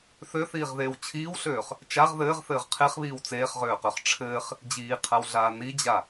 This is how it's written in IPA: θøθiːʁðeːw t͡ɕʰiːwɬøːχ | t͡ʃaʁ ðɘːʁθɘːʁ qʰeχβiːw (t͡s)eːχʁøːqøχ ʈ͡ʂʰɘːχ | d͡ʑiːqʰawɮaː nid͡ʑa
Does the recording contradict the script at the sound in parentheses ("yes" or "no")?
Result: no